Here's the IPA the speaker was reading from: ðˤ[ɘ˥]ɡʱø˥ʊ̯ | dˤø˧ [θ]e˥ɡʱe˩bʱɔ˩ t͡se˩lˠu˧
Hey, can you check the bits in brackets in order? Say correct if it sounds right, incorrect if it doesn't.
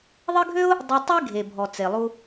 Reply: correct, incorrect

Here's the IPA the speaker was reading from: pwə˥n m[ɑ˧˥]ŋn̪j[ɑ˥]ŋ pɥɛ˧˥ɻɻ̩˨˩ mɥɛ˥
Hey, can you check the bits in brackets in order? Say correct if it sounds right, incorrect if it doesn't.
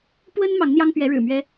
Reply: correct, correct

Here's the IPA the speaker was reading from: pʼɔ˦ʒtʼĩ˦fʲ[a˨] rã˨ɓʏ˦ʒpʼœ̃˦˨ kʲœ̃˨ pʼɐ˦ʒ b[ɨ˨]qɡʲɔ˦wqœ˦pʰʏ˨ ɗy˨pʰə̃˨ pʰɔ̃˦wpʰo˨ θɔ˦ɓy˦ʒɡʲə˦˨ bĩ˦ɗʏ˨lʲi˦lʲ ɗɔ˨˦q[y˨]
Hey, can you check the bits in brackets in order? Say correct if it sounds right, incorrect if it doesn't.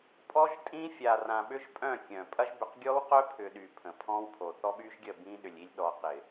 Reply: correct, incorrect, incorrect

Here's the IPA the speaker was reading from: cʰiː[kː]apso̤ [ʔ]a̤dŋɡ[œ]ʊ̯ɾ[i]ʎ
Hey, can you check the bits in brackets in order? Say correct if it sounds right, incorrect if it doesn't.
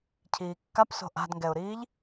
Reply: correct, correct, incorrect, incorrect

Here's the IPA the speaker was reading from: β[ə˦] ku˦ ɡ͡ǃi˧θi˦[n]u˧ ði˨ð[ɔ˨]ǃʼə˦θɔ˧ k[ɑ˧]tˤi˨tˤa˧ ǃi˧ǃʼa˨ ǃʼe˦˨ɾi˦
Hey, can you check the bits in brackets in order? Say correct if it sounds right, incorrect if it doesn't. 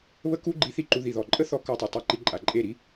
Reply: correct, incorrect, correct, incorrect

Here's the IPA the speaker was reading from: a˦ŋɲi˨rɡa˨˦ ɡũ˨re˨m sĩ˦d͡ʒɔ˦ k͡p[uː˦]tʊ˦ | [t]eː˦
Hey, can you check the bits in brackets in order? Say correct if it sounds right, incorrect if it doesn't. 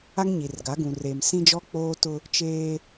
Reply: incorrect, incorrect

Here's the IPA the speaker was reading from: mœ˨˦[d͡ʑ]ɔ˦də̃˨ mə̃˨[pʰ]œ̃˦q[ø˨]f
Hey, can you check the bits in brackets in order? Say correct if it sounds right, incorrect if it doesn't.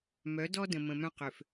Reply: incorrect, incorrect, correct

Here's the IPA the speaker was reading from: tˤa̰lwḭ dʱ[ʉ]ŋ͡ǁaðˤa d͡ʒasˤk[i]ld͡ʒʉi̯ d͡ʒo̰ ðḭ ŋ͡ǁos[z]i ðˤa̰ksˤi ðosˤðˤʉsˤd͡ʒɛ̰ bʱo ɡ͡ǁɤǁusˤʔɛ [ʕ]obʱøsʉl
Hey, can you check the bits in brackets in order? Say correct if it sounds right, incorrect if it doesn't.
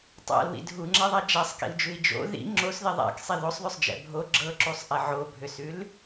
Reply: incorrect, incorrect, incorrect, correct

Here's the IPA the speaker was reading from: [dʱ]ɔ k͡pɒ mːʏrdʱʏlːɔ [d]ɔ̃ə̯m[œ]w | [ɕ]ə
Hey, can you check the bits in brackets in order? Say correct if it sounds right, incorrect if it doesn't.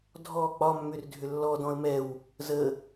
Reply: correct, correct, incorrect, incorrect

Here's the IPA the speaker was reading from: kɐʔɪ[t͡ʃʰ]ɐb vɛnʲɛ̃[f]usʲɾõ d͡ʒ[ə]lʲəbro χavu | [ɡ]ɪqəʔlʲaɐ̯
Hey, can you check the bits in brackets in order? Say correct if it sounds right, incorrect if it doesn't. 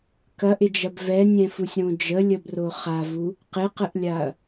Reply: incorrect, correct, correct, incorrect

